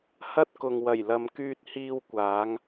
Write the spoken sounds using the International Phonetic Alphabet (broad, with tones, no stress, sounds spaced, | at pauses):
h ɐ˥ t̚ k ʊ˨ ŋ w ɐ˨˩ j l ɐ˨ m k yː˧ t̚ h iː˧ w kʷ aː˨˧ ŋ